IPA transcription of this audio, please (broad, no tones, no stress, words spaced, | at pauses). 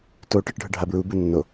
to ʈɯʈɖʱɯɖʱabɹu bɯnːo